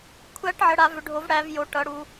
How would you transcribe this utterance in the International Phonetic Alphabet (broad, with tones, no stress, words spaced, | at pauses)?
kʷʰæ˦˥ʈʕə˨˦ ɽa˨˦vʏ˨˦ ɖʱo˨˦v ɽæ˨˦vjo˨˦ ʈʌ˨˦ɽu˨˦